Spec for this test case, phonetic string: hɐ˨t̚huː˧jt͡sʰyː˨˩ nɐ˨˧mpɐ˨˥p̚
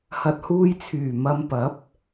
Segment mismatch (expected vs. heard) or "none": n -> m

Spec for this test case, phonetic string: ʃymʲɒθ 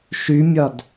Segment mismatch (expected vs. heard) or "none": θ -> d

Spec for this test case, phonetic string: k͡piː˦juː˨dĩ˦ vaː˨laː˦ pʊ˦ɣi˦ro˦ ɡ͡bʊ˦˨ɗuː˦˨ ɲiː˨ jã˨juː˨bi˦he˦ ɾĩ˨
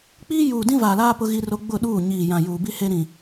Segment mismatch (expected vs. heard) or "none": none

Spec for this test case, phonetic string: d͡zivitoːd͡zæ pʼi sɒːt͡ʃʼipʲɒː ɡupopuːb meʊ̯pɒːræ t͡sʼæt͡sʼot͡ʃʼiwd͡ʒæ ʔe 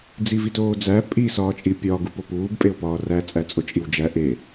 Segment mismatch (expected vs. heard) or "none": m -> pʼ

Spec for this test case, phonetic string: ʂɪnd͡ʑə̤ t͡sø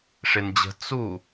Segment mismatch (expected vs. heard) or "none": ø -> u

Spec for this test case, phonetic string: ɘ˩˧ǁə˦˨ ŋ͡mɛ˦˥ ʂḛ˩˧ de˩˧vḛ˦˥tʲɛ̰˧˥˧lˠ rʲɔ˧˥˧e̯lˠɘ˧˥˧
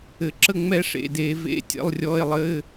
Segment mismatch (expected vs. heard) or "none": none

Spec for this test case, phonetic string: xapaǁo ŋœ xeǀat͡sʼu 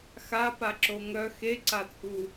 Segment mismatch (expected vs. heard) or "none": none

